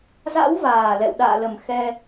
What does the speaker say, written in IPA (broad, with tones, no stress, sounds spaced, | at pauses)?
z a̰˧˥ w v aː˨˩ l ɛ̰˧˨ w ɗ a̰ː˧˨ l ə˨˩ m x ɛ˧